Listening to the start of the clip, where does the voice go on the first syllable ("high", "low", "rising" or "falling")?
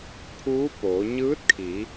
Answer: rising